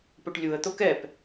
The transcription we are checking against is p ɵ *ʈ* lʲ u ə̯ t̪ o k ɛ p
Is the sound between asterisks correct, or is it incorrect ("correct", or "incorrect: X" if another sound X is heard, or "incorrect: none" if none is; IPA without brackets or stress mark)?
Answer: correct